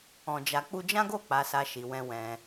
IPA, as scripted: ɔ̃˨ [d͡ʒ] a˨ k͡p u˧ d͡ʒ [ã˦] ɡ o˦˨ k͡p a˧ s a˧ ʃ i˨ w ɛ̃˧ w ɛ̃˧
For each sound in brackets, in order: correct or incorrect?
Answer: correct, correct

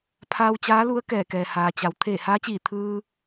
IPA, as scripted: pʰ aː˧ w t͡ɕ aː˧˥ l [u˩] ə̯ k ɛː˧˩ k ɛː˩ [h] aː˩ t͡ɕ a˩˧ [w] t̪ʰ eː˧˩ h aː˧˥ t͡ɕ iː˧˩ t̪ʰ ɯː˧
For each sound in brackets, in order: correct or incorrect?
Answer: incorrect: u˧˥, correct, correct

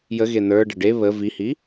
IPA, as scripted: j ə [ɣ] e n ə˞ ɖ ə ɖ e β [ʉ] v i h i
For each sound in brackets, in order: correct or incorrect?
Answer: correct, incorrect: ə

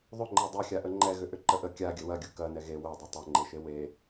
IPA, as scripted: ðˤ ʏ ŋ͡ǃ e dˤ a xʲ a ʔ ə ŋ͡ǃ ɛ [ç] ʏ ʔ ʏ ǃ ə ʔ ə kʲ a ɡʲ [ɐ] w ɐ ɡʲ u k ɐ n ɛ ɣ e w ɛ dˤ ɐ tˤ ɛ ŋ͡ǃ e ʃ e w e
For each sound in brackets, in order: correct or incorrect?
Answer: incorrect: ɣ, incorrect: ə

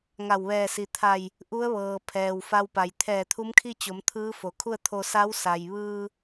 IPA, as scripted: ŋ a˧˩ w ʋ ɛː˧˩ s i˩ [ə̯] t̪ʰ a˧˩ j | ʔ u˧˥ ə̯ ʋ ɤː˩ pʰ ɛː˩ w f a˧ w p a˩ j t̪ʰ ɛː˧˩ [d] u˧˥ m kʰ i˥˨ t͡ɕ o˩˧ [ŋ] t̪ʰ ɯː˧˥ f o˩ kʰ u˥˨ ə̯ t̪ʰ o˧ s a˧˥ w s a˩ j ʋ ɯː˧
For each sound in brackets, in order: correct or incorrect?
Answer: incorrect: none, incorrect: t̪ʰ, incorrect: m

